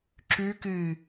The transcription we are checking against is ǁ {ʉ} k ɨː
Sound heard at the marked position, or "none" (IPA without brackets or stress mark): ʉ